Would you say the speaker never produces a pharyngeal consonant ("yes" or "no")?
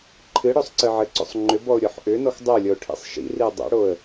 no